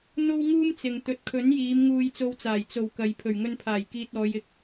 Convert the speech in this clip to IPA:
n̪ o˥ w ŋ uː˥ m t͡s ɪ˨ ŋ t̪ ɵ˨ t̚ kʰ ɵ˨˥ n j iː˨˧ m ŋ uː˧ j t͡s o˧ w t͡s aː˨˩ j t͡s o˨˩ w k ɐ˨ j pʰ ɵ˨˩ ɥ ŋ ɵ˧ n pʰ aː˨˩ j k iː˨ t̚ ɔː˨˧ j ɪ˨˥ k̚

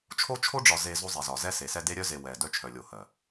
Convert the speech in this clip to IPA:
t͡ʃʰ o˦ t͡ʃʰ o˦ ɖ͡ʐ ɒ˨ z e˨ z o˦ zˤ i˨ z ɒ˨ z ɛ˦ s e˨ s ɛ˦ d e˦ ɾʲ œ˦ z e˨ w ɛ˨ d œ˦ t͡ʃʰ œ˨ lʲ o˨ h ɜ˨

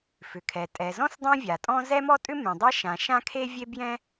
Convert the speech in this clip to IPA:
f ʏ˩ kʰ ɛ˩ tʼ ɛ˩ z ɔ̃˥ s dˤ ɛ̃˥ vʲ a˩ tʼ ɔ̃˥ z ɛ˥ m ɔ˥ tʼ ʏ˥ m ẽ˩ dˤ ɛ˥ ʃ ã˩ ʃ ã˥ kʰ e˥ vʲ e˥ b j ɛ̃˥

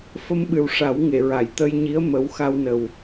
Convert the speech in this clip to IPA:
f ə˧ m ɓ ɨ˨˩ w ʂ a˨˩˦ w ŋ e˨˩˨ ɹ a˨˩˨ j t̪ ə˧ j ɲ i˧˥ ə̯ m ə˧˥ w x a˧ w n ə˨˩ w

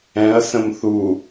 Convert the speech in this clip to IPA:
ɛ̃ ɐ̯ s ə̃ m θ u

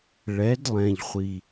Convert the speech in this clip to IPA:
ɭ ɛ˨˦ d lˠ ɛ̃˨ ʎ χʷ i˨

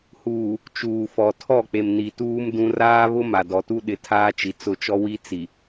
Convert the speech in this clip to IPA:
h uː˨ | t͡ʃ uː˨ f ɔ˨ tʰ ɔ˦˨ k͡p e˨ m n i˨ t uː˦ m d ũ˦ r aː˦ β ʊ˦ m a˨ d ɔ˨ t u˦ ɗ ɪ˨ tʰ aː˦ t͡ʃ i˨ t͡s ʊ˦˨ t͡ʃ ɔ˦ w i˦ t͡s i˨

